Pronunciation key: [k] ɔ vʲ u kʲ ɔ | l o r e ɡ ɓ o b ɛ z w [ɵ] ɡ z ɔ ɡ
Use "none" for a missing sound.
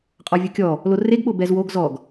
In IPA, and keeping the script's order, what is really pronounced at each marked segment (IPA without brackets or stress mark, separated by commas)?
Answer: qʼ, o